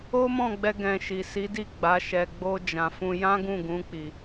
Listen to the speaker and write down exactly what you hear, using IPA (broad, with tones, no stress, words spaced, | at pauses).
o˦mɔ̃˦˨ɡ͡bɛ˧ ɡɛ̃˧ʃi˨ si˨˦di˦˨ɡ͡ba˨˦ ʃɛ˧ɡ͡bo˦ d͡ʒã˧ fũ˦ jã˦ɡũ˦˨ɡũ˨˦ k͡pi˧